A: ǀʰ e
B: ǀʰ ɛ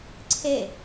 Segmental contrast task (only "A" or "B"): A